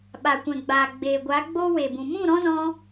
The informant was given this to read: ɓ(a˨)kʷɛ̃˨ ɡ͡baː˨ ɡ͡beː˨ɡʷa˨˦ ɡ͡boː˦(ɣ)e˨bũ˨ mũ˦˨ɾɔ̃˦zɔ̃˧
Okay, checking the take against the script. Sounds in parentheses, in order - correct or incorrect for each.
correct, incorrect: w

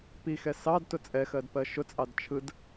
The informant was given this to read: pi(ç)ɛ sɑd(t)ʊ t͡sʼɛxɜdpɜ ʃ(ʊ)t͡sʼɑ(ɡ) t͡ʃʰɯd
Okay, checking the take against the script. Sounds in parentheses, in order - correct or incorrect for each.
incorrect: x, correct, correct, incorrect: d

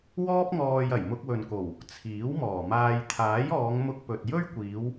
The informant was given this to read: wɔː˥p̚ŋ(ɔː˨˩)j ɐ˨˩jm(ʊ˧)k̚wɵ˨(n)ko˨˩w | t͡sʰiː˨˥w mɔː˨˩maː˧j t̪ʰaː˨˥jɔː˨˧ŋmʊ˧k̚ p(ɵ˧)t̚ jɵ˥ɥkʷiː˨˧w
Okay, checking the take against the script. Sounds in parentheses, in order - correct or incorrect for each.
incorrect: ɔː˧, correct, correct, incorrect: ɵ˨

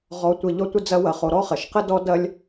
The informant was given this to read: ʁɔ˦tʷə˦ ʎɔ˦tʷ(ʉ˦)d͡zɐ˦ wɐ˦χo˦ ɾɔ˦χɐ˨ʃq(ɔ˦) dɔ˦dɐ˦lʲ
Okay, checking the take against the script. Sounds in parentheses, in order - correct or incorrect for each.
incorrect: ə˦, incorrect: ə˦

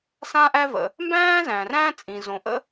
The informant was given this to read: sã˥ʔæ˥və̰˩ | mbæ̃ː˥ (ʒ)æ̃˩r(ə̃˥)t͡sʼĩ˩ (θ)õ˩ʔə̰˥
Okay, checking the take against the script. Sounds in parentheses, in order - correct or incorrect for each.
incorrect: z, incorrect: æ̃˥, incorrect: z

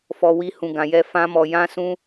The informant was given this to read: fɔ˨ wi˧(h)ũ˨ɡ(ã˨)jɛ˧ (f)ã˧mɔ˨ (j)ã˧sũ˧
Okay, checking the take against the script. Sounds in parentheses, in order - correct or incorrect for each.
correct, correct, correct, correct

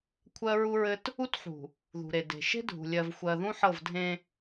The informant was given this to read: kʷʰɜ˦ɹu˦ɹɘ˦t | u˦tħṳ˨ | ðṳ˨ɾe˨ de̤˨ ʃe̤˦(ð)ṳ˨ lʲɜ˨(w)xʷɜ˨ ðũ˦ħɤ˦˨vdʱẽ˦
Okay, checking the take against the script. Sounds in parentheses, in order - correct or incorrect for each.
incorrect: dʱ, incorrect: v

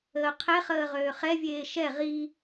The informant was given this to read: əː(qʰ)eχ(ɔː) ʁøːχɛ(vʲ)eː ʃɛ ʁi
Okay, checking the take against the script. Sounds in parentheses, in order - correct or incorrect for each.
correct, incorrect: əː, correct

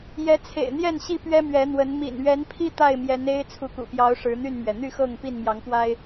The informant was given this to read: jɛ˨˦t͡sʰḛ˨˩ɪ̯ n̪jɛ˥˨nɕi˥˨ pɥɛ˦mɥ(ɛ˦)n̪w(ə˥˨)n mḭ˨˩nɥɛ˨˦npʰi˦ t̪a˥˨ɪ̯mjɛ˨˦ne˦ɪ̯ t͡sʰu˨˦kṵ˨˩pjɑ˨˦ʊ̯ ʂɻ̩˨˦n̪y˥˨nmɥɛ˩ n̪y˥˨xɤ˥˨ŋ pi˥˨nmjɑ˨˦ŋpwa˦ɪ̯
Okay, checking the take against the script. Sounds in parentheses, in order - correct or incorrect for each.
incorrect: ɛ˨˦, incorrect: ə˨˦

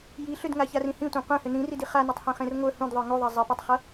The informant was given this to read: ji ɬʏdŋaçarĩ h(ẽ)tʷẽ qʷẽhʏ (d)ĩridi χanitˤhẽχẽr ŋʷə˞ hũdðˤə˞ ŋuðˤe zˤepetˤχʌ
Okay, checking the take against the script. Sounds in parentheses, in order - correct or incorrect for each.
incorrect: ĩ, incorrect: n

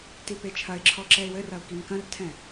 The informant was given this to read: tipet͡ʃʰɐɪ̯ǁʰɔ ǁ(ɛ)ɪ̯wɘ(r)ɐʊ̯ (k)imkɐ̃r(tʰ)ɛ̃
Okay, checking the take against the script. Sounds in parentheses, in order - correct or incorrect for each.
correct, correct, correct, correct

